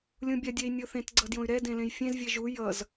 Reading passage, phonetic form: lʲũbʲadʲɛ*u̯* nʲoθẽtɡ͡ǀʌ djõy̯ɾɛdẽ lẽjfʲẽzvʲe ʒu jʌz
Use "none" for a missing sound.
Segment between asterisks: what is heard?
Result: i̯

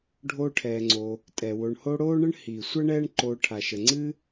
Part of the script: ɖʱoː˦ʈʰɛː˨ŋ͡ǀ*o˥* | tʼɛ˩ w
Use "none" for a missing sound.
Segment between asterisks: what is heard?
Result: o˨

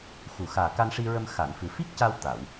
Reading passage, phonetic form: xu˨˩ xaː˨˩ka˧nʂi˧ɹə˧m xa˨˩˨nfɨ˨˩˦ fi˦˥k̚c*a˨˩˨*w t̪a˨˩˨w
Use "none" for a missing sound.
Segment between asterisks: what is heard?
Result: a˧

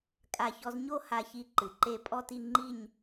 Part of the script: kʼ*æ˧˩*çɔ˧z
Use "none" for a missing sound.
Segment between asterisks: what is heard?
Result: a˧˩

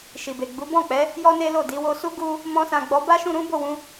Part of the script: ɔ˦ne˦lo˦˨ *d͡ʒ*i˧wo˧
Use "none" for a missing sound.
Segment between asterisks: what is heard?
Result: d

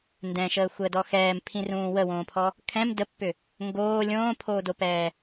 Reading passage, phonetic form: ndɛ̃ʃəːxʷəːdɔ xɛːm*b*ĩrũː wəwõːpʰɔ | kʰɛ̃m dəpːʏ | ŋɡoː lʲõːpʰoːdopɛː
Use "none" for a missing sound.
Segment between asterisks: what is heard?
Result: pʰ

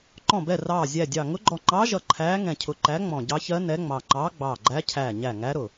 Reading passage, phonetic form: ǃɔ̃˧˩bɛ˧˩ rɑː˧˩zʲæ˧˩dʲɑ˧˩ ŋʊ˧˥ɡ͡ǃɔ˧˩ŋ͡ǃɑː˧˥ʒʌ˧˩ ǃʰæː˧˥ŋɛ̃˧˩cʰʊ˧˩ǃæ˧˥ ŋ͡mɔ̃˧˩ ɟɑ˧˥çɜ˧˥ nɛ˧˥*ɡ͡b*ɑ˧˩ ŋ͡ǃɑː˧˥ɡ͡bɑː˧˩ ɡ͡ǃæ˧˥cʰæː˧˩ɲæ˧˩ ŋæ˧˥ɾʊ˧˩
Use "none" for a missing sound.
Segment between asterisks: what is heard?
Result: ŋ͡m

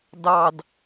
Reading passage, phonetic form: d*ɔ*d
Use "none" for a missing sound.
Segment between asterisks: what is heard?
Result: ɑ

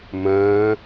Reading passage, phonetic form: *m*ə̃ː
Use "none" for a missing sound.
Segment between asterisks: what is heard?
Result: m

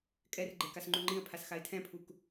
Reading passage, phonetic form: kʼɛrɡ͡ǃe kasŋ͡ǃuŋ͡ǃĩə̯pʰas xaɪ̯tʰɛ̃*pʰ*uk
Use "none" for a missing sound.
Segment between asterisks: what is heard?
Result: pʰ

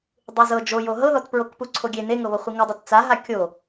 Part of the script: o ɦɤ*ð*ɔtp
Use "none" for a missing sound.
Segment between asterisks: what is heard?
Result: ð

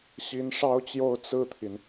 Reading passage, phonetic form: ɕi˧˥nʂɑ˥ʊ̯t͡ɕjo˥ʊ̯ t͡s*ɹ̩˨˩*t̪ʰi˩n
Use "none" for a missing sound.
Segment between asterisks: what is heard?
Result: ɹ̩˥˩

